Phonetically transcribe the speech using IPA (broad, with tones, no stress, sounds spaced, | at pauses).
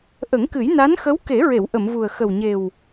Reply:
ʔ ə˨˩˦ ŋ k ɨ˨˩˦ j n a˧˥ n x ə˧˥ w k e˨˩˦ ɹ e˨˩˨ w ʔ ə˨˩˨ m v u˨˩ ə̯ x ə˨˩ w ɲ e˨˩ w